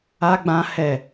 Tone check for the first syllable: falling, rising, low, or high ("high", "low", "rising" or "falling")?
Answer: high